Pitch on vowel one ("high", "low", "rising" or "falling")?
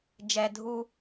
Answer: low